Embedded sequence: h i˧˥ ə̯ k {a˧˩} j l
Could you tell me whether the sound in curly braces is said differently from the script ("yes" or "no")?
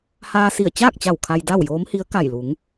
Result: no